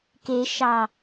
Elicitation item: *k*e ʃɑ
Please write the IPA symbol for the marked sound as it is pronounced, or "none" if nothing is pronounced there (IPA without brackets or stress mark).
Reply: k